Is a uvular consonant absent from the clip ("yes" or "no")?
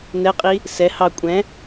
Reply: no